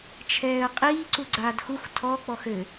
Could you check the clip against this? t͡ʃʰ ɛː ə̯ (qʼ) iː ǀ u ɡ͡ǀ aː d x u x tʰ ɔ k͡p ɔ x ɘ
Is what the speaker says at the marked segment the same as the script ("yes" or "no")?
yes